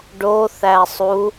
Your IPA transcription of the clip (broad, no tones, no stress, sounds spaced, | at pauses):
ɖ o θ æ sˤ u